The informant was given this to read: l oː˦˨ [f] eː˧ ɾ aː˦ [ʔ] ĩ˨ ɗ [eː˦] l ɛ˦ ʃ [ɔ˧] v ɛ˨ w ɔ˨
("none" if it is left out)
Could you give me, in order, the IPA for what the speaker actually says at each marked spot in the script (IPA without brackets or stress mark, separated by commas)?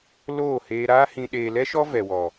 h, h, eː˨, ɔ˦